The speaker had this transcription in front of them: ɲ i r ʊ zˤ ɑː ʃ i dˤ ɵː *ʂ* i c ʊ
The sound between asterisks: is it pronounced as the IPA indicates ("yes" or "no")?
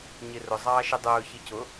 no